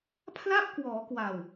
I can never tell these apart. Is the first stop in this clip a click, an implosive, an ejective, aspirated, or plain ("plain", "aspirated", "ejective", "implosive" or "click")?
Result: aspirated